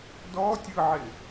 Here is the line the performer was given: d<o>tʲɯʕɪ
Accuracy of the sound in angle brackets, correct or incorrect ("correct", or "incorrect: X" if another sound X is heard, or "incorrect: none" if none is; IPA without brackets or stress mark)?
incorrect: ɔ